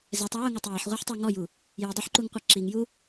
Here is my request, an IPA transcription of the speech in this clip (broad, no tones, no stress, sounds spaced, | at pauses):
z ɛ tˤ a w ʊ ŋ a tˤ j a ħ ʁʷ a ħ tˤ o ŋ ɔ j u | j i dˤ o ħ ǃ u ŋ qʷ a ǁ i ŋ j u